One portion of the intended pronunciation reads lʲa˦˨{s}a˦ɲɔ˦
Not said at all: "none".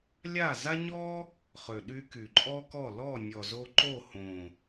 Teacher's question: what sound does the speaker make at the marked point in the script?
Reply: z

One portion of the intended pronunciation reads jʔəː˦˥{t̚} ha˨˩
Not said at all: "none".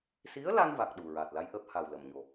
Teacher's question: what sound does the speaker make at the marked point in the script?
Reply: p̚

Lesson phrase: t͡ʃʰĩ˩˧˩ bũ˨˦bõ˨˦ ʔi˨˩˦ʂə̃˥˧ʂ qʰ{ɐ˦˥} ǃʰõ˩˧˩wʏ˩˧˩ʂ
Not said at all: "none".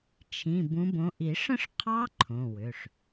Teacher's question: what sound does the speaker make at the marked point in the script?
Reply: ɑ˦˥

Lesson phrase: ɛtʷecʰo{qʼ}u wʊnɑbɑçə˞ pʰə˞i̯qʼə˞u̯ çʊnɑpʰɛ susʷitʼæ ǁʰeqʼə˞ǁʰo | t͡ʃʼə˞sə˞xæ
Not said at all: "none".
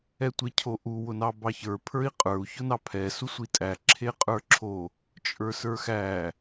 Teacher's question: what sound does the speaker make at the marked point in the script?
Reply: ʔ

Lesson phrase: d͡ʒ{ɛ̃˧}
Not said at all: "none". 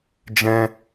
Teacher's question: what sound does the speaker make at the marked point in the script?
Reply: ɛ̃˧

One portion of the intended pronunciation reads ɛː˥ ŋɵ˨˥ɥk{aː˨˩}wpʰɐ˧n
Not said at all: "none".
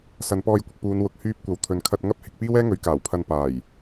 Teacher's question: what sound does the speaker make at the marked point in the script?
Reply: aː˨˩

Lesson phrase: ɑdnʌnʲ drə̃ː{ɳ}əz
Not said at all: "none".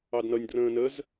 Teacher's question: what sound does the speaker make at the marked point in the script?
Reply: n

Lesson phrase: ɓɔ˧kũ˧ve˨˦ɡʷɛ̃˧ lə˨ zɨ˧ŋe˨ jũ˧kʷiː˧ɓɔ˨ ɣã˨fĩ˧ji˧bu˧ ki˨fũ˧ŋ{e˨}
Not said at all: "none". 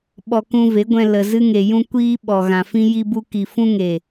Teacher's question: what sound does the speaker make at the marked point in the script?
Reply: e˨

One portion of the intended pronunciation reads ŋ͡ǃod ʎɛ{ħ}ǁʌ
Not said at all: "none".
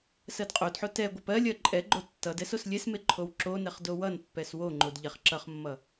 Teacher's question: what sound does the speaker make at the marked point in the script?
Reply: χ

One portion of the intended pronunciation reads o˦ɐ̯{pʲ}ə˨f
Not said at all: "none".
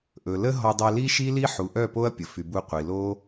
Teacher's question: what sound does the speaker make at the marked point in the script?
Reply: pʲ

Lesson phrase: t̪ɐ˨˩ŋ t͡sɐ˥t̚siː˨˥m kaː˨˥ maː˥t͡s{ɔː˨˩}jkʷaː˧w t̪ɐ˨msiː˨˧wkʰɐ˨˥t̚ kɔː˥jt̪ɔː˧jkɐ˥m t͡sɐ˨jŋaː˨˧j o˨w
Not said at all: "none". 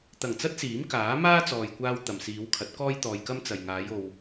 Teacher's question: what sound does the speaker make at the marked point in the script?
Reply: ɔː˨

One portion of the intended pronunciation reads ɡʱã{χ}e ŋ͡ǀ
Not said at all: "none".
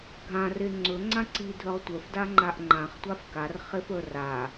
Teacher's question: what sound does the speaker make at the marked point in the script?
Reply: r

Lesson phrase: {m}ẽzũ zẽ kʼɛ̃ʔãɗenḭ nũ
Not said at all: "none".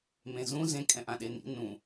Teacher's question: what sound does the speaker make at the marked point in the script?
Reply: m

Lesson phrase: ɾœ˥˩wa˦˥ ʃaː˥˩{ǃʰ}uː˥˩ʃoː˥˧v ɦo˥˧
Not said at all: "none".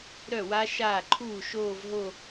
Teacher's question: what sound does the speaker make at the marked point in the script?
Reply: ǃʰ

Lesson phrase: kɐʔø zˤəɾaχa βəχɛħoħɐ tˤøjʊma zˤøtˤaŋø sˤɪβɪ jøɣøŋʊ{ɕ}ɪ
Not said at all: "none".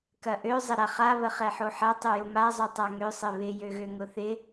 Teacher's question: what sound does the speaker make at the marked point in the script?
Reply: θ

